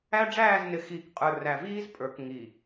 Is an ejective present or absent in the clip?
present